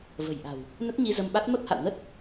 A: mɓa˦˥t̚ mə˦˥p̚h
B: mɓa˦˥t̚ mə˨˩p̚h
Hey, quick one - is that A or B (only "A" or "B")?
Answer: A